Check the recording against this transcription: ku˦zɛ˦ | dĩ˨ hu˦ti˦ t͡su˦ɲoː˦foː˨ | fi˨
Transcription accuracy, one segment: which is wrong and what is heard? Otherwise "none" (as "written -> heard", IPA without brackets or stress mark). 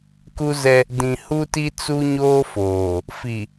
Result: none